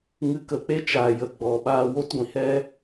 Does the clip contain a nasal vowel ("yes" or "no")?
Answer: yes